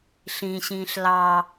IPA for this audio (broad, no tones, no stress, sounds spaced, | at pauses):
ɬ ĩ ɕ ĩː ɬ l ɑ